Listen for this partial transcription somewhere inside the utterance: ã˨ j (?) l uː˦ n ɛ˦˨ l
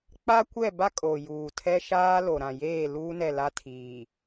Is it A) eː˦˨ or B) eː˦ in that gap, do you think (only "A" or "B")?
A